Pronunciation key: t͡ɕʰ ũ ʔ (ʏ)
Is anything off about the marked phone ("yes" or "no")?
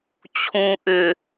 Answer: no